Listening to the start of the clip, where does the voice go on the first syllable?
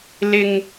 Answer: high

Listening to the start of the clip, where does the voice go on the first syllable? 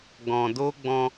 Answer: low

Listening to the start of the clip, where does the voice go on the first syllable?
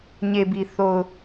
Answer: low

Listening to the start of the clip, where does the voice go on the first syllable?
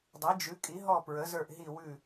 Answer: rising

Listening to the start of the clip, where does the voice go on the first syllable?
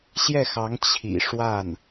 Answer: falling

